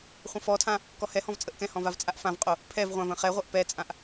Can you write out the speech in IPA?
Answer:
χʷ ə̃ f ɔ tʰ ã | k ɔ h ɛ h ɔ̃ v t͡sʼ ə ʔ k ɛ̃ h ɔ̃ v a v t͡sʼ a ʔ f ã v qʼ o | pʰ ɛ v ʁʷ ã v ə̃ χ ɛ ʁʷ ɜ ʔ p ɛ t͡sʼ ã ʔ

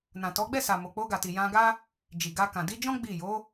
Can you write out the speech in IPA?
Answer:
n ã˨ t ɔ˨˦ ɡ͡b ɛ˦˨ s a˨ m o˨ k͡p o˧ ɡ a˨ t i˨ j ã˧ ɡ a˦ | d͡ʒ i˨ ɡ a˧ k ã˨ d i˧ d͡ʒ ɔ̃˦ ɡ͡b i˦˨ j o˨˦

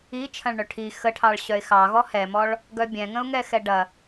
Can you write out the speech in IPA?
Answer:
i t͡ʃʰ ɐ̃ ɭ ɳ œ ʈʰ i x ə ʈʰ ɑ ɭ ɕ œ ɪ̯ x ɑ ɣ ɔ h ɛ m ɔ ɭ | ɡ œ bʲ ɛ̃ ŋ ə̃ ʊ̯ ŋ ɛ x ɛ ɖ ɐ

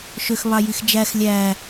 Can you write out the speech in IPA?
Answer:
ʃ ø x β ɑ j i x d͡ʒ æ x lʲ æ

